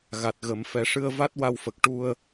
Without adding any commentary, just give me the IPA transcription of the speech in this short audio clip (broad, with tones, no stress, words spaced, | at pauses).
ɣa˨˩t̚ɣə˨˩˦m fɛ˨˩˦ʂɨ˧ə̯ va˦˥t̚ wa˧wfə˨˩k̚ ʈu˧ə̯